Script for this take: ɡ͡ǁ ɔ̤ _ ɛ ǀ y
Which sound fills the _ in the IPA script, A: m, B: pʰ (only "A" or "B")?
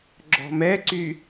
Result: A